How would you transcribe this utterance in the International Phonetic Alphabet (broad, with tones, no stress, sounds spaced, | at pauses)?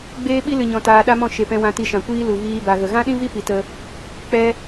ɡ͡b eː˦ ɓ i˦ l ɨ˨ ɲ ɔ̃˨ t aː˧ ɗ a˦ m ɔ̃˦˨ ʃ e˨ p ɛ̃˧ w ã˧ t i˧ ʃ ã˨ kʷ iː˦ l u˨ ɣ iː˧ b a˨ ɣ ə˨ ɣ ã˦ ɗ ĩ˦ v i˦ p i˧ t ə˦ | k͡p ɛ˦